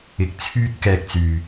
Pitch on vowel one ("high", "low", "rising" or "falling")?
rising